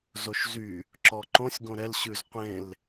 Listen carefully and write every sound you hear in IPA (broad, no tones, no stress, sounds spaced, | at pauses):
z o ʃ z y | ǁ ɔ ǃ õ sʲ ɡ õ ɾ ɛ l ɕ ʉ z qʷ ẽ l